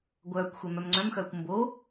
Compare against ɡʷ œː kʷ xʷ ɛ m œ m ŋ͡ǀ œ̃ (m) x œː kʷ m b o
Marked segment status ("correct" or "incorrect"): correct